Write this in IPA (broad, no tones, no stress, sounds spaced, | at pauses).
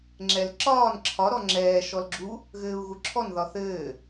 ŋ͡ǁ ɛ l ǁ ɒː n ǁʰ ɒ ɾ ɔ ŋ͡ǁ ɛː ʃ ɔ l ɡ͡ǁ u | ɣ ɘː u̯ ɣ u ǁʰ ɔ n ð ɒ θ ɘː